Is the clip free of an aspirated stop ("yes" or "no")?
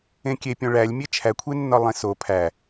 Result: no